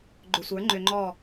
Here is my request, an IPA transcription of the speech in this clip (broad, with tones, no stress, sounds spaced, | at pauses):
ɡ͡ǃ ʏ˨ sʷ ə˞˨˦ ŋ͡ǃ ʏ˧ ŋ͡ǃ ɔ˦˨